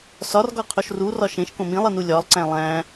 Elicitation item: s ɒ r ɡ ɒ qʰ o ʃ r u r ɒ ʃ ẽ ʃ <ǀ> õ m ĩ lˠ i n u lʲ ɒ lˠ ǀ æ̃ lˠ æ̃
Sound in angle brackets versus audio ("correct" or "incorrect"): incorrect